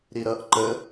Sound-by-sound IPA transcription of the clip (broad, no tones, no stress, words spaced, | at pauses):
ɾiɾʌʔ ǃə